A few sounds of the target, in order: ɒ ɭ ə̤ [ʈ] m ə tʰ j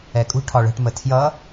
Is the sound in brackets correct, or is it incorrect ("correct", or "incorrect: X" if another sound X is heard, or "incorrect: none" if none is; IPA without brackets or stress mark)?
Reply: correct